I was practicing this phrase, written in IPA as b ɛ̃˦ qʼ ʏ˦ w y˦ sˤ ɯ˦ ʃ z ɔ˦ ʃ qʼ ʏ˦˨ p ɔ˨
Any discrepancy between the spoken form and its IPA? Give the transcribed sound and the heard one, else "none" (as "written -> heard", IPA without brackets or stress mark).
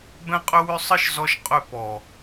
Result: y˦ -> ʏ˦